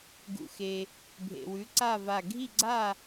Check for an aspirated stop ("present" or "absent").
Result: absent